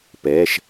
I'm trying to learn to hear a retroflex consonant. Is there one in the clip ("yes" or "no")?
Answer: no